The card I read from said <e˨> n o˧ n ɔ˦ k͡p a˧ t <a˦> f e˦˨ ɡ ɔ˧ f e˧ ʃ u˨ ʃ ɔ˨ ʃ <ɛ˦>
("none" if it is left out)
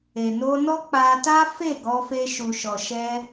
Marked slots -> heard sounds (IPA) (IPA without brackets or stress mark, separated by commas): e˨, a˦, ɛ˧